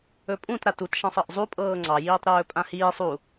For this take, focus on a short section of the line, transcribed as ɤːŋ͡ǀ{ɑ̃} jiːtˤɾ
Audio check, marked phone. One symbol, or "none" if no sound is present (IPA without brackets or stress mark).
ɑ